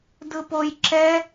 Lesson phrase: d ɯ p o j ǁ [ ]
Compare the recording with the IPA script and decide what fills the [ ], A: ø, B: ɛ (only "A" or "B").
B